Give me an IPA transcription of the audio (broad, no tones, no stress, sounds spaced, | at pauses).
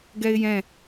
ɡ ɛ ɪ̯ j ɛ̃